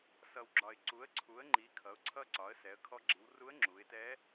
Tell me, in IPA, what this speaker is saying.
s ʌ˩ w ɡ͡ǁ ɒ˩ ɪ̯ ǀ u˩˧ ə̯ ǀʰ u˩˧ ə̯ ŋ͡ǃ i˩˧ kʰ ʌ˩˧ ʊ̯ ǀʰ ʌ˧ ǀ ɒ˩˧ ə̯ s ɛ˩˧ ə̯ kʰ ɔ˧ ɡ͡ǁ i˩˧ w r u˧˥ ə̯ ŋ͡ǁ u˩˧ ɪ̯ t ɛ˧˥

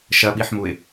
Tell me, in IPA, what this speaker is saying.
ʃ ɐ ɓ i ħ m u ɪ̯

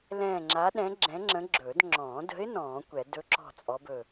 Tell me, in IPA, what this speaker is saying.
l ɛ̃ː˦˨ ŋ͡ǁ a˧˥ ɗ ɛ̃˧˥ ɡ͡ǁ ɛ̃˧˥ ŋ͡ǁ ə̃˧˥ ɡ͡ǁ ɵː˨˩˦ d ŋ͡ǁ ɔ̃ː˨˩˦ d ə̤˧˥ ɪ̯ n ɔ̃ː˨˩˦ kʷ ɛ˨˩˦ d ɵ˧˥ ǁ ɔ̤˦˨ t͡sʼ ɔ˧˥ b ɵ˦˨

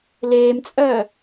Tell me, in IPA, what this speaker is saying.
l eː m t͡sʼ œː

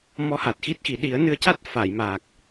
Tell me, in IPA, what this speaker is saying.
m ɔ˧˥ h a˨˩ t̚ x i˦˥ t̚ x i˨˩˦ ɗ i˨˩˦ ə̯ n ɨ˧ ə̯ c a˦˥ t̚ f a˨˩˨ j m aː˨˩ k̚

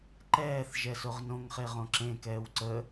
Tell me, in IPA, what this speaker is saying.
ǃ ɛː θ ʒ ɛ s o ʁ n õ ŋ χ e ʁ õ ǁ ẽ k ɛː w ǀ ə

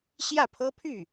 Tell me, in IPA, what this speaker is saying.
ɕ j ä˥˩ pʰ ɤ˥ pʰ y˥˩

